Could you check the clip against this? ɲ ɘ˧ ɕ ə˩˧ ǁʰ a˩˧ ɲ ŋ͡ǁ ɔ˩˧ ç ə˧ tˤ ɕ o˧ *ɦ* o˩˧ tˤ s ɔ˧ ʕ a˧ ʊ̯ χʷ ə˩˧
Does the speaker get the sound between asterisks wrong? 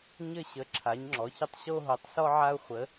no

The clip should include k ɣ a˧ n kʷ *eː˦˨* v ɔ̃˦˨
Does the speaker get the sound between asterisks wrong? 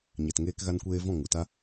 yes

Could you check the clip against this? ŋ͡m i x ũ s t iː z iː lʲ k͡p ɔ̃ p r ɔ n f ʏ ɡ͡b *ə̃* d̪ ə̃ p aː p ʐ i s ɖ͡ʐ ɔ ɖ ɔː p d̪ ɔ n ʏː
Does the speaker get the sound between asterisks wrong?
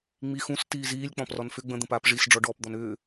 no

